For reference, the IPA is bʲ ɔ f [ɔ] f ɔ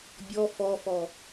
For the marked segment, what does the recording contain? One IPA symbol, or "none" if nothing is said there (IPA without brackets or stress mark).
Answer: ɔ